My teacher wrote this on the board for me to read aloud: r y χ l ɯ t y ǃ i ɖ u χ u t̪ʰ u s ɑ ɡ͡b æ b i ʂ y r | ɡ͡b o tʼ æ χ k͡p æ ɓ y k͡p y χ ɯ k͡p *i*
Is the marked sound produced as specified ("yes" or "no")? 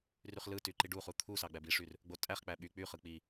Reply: yes